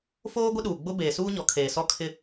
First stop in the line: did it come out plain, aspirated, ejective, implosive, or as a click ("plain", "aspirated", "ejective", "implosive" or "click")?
plain